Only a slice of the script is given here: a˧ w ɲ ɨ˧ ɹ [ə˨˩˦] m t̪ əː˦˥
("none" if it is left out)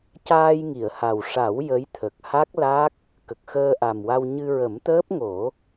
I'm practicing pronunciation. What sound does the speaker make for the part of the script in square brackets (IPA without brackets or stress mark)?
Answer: ə˨˩˦